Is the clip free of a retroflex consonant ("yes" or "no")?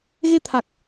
yes